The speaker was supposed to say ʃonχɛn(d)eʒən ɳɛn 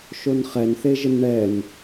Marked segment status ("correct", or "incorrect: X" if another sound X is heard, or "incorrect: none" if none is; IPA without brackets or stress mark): incorrect: θ